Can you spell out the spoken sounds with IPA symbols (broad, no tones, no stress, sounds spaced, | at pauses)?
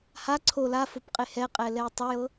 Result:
h a ǀʰ o l a f o p qʼ e h ɛ qʼ ɛ l ɛ j tˤ ɛ j ɤ